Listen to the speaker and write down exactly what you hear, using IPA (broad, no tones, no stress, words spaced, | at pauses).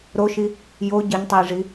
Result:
ɾoʃi | jo ɟɘɲtˤɘjʐi